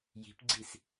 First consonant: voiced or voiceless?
voiced